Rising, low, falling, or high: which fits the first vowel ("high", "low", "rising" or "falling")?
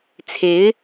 rising